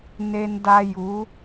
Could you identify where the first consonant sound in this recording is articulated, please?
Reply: alveolar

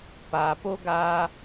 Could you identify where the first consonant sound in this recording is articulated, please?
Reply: labial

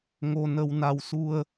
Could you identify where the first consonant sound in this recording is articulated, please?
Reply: velar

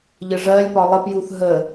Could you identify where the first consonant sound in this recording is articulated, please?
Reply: palatal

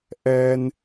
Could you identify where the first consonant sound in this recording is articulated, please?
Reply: glottal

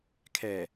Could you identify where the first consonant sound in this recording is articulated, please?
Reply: velar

